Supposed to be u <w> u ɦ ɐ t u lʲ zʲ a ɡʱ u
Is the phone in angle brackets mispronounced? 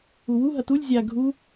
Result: no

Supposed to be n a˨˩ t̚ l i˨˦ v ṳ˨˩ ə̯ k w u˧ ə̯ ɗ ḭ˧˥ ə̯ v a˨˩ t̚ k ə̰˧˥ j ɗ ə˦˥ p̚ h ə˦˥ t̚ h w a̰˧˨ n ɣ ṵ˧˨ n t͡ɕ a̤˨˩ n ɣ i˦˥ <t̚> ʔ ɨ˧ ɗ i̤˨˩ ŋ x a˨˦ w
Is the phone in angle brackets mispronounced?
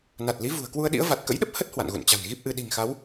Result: yes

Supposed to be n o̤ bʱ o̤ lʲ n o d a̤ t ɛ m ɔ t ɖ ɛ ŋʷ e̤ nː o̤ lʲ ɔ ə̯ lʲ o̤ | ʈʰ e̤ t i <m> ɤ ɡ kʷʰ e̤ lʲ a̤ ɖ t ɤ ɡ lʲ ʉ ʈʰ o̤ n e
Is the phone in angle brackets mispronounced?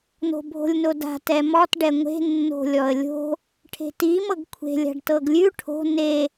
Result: no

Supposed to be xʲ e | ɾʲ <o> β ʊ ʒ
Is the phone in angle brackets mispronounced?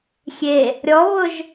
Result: yes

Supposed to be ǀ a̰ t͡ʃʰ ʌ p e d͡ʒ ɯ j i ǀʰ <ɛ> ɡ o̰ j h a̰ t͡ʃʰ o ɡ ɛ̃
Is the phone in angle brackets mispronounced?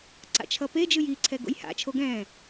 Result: no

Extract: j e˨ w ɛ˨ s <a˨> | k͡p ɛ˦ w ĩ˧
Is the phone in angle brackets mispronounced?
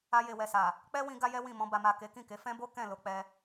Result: no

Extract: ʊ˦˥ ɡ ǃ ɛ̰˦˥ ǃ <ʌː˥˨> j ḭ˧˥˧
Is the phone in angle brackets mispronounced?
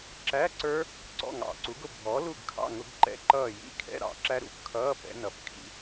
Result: no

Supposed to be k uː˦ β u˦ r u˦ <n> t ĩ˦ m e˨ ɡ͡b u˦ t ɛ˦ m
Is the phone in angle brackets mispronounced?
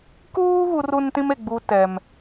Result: no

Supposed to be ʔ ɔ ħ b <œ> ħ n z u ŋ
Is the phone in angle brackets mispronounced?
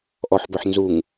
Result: no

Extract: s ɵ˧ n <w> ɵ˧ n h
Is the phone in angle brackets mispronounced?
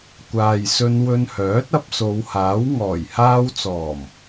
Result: no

